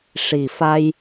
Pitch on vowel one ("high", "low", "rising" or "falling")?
low